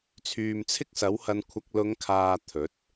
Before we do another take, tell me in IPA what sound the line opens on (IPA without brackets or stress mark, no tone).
t͡sʰ